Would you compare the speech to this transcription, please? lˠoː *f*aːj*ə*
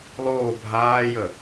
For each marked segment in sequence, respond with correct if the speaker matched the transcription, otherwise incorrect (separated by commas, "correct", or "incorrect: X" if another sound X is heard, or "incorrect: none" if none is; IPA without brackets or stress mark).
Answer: incorrect: bʱ, correct